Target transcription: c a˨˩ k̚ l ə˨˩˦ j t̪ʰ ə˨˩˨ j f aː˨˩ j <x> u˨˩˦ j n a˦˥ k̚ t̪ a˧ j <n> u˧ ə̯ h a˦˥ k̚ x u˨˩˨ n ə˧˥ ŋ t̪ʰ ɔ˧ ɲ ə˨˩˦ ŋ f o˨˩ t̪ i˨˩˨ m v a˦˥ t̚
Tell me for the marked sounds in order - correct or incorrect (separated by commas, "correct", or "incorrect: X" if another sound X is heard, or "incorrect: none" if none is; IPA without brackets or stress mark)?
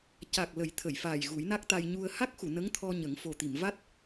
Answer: incorrect: ɣ, incorrect: ɲ